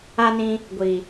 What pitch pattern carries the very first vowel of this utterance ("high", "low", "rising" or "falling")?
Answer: high